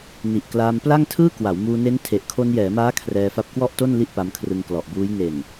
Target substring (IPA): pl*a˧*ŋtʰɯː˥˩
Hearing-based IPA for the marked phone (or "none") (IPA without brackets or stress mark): a˥˩